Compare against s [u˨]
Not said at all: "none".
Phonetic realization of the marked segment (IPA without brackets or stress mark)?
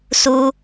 u˦